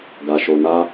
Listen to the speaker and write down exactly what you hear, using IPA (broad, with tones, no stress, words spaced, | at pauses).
ɡa˧ʃo˧na˦